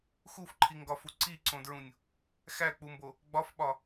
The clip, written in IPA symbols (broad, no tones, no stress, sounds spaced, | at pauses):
x u f ǃʰ i ŋ ɡ ɒ f u ǀ i ǀ õ d ɹ ũ nʲ | x æ k͡p u m b o | ɡ͡b ɒ f ɓ ɒ